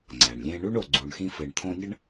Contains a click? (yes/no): yes